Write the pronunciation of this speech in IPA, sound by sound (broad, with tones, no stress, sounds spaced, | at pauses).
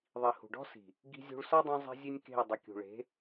ðˤ i˨ h ṳ˨ ɖ ɔ̤˦ s i̤˨ | ɡ i̤˦ zʲ ṳ˦ ɭ s ɔ˦ dˤ ũ˧ zˤ i̤˧ zʲ e˦ nʲ k e̤˦˨ ʊ̯ dˤ ɪ˨˦ kʲ ṳ˨ ɭ e̤˨˦